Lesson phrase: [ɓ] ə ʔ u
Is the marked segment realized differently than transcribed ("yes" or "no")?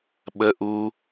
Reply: no